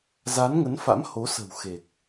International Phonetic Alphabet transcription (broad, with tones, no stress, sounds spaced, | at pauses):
z a˨˦ n ŋ ə˨˦ n f a̰˧˥ m h o˨˦ s ə̤˨˩ w x e˨˩ k̚